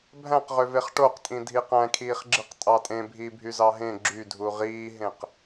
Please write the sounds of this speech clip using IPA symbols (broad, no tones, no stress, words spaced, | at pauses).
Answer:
bʱæ̃qʁøveχ ʈoqtʼĩ dʱiqæ̃kʰiːχɡ͡ǁɯq tʼɑtʼẽbʱiːbʱy zɑɦẽ ɡ͡ǁydʱu ʁiːɦẽq